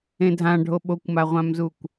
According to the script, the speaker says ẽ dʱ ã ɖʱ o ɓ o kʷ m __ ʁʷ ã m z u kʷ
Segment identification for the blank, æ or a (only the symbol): a